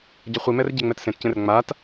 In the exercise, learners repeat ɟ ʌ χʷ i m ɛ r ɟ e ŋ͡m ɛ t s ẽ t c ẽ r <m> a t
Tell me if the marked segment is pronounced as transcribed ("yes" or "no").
no